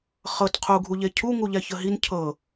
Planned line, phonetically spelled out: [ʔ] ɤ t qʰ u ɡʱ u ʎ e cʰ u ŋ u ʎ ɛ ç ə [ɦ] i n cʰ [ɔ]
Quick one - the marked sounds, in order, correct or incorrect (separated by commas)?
incorrect, correct, incorrect